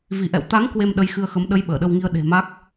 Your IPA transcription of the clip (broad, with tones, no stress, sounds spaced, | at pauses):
v i˧˩ ʔ ɛ̰˧˨ w t̪ a˨˦ ŋ k w e˧ m ɗ ə˨˦ j x ɨ˧ ə̯ x ə˨˦ m ɗ ə˨˦ j ɓ əː˧˩ ɗ ə˧ w ŋ i˧ ə̯ ɗ e̤˨˩ m a˦˥ k̚